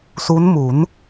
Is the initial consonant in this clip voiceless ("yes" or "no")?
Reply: yes